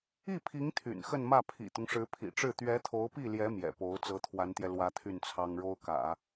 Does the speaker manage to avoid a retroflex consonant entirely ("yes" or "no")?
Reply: no